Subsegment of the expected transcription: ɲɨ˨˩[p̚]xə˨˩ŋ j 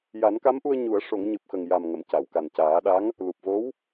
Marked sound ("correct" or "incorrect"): correct